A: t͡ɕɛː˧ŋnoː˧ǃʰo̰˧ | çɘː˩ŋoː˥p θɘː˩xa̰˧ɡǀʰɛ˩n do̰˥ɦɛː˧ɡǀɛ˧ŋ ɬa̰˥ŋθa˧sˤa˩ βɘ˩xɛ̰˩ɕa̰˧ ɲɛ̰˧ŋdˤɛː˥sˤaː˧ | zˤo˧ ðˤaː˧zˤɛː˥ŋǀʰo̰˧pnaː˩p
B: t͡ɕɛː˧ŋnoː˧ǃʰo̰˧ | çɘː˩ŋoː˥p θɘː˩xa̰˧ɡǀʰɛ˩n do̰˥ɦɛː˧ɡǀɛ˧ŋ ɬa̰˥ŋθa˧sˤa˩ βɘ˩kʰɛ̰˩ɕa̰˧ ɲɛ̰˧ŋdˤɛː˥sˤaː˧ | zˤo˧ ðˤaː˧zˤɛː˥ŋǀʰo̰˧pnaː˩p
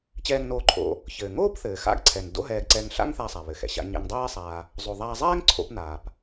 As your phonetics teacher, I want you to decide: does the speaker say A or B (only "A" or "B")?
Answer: A